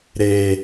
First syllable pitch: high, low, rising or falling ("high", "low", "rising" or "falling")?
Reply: low